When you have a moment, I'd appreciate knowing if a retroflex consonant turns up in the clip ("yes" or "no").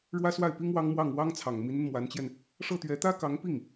yes